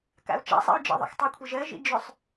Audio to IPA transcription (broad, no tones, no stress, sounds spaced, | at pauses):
k a̰ u̯ t͡ʃ a̰ sˤ ɛ̰ u̯ d͡ʒ ɛ̰ ðˤ ɛ̰ x tˤ ʏ kʷʰ ɜ ʒ ɜ ʒ ḭ d͡ʒ ʏ sˤ